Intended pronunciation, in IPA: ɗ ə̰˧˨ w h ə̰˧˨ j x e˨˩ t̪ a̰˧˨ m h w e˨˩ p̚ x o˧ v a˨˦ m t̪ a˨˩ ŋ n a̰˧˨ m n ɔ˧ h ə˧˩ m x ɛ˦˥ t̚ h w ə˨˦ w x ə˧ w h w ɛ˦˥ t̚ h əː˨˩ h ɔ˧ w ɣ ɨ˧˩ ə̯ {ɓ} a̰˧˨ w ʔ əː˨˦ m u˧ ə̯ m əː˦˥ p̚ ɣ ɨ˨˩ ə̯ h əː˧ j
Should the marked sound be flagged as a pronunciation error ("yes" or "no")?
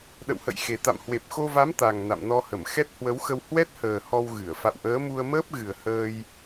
yes